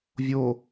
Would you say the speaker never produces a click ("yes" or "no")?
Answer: yes